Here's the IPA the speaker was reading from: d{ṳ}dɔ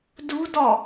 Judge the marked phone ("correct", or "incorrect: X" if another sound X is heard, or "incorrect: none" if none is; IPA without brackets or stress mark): correct